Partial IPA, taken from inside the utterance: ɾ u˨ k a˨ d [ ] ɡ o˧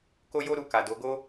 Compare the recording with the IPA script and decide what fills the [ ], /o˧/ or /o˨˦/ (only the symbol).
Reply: o˨˦